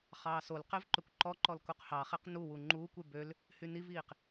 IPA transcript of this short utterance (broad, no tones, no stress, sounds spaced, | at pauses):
χ ɑː s o l q e v ǃ ø kʷ ǃ ɔ ǃ ɔ l k u q h ɑ χ e q n u w u ŋ͡ǃ uː kʷ y b ø l | h y n i v iː q